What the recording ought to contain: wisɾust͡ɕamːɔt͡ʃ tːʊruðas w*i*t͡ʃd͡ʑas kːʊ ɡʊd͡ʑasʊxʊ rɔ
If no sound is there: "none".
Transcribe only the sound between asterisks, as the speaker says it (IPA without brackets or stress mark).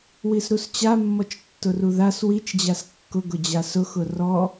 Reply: i